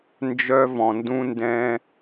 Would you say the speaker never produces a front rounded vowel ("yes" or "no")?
no